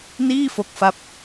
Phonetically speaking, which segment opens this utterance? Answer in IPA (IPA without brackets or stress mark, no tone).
n